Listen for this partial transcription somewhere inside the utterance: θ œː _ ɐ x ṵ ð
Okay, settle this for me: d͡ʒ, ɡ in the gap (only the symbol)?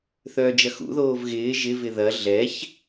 d͡ʒ